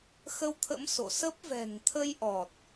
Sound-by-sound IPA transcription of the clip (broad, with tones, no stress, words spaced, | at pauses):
xə˧wt̪ʰə̰˧˥m so̰˧˨sə˦˥p̚ vɛ̤˨˩ŋt̪ʰə˧jʔɔ˨˩t̚